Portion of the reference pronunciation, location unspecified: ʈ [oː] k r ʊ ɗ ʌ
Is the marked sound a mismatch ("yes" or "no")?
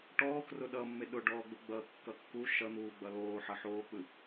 yes